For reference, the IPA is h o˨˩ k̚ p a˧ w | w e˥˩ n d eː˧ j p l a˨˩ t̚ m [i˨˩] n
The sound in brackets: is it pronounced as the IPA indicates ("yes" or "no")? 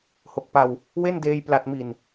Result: yes